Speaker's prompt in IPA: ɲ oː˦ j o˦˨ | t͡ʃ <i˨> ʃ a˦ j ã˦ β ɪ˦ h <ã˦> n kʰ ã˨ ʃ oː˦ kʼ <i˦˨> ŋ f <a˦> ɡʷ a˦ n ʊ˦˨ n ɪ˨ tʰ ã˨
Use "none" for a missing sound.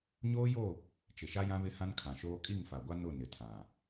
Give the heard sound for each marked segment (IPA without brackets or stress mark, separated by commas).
ɪ˨, ã˦, i˦˨, a˨